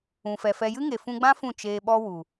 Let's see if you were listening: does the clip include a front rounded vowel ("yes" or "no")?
no